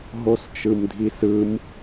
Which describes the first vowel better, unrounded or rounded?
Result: rounded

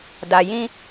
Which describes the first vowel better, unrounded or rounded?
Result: unrounded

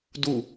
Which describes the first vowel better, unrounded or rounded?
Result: rounded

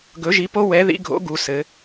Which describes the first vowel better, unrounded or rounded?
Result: rounded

